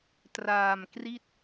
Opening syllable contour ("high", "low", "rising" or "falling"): low